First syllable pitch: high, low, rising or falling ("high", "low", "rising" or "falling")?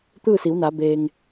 falling